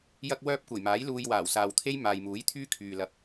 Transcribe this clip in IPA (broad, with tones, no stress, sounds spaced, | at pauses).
j ɐ˧ k̚ w œː˧ p̚ kʷ ɐ˨˩ j m aː˨˥ j l uː˧ j w aː˨˩ w s aː˨ w t̪ʰ e˥ j m aː˨ j m uː˨˥ j t̪ʰ yː˥ kʰ yː˨ l ɐ˨˥ p̚